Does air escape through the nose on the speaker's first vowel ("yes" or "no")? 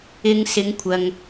no